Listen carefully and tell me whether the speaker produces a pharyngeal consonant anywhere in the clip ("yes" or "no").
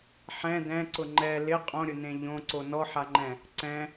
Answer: yes